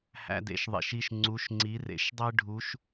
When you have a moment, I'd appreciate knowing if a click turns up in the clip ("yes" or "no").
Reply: yes